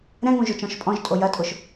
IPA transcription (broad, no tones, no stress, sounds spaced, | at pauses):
ɾ ɛ̃ ŋ ũ ʒ ʊ t͡ʃ ɔ̃ ʃ pʼ ɔ̃ ʒ tʼ o j ɐ tʼ ʊ ʃ